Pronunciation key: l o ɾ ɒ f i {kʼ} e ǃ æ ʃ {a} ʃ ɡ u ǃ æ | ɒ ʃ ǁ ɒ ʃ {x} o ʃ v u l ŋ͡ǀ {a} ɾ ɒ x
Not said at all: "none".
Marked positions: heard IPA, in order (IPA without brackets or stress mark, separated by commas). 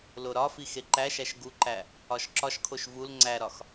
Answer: x, æ, kʰ, æ